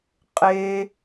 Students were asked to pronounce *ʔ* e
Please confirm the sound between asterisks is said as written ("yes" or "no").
no